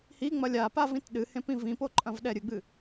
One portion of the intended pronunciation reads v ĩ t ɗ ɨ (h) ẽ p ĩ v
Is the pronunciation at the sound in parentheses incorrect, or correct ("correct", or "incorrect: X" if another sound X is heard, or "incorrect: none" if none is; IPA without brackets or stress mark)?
correct